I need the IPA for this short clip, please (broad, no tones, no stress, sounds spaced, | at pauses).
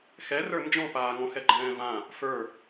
x ɛ r ə˞ n d͡ʒ ɔ̃ p aː ŋ ɔ̃ x ɛ ɡ͡ǃ ɛ̃ː v ã | f ə˞